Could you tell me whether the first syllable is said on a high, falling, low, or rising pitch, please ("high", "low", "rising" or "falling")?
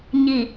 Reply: low